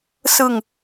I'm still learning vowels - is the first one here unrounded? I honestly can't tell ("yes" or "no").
yes